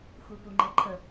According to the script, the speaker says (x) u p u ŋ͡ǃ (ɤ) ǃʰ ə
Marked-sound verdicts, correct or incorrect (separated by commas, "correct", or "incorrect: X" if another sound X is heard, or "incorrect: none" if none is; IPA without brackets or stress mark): correct, correct